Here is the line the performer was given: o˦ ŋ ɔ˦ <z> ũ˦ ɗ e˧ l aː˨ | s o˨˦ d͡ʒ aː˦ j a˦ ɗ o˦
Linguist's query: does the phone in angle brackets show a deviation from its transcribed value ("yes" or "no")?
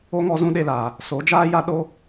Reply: no